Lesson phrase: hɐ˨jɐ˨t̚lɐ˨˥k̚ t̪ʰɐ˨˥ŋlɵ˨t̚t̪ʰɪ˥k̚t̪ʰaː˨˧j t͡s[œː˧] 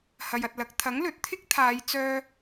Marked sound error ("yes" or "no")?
yes